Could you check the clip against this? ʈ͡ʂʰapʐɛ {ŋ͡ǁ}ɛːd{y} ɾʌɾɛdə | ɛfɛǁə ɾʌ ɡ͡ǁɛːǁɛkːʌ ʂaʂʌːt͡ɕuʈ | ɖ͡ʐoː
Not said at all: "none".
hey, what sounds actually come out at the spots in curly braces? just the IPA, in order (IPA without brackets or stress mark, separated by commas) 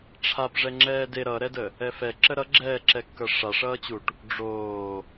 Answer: ŋ͡ǁ, e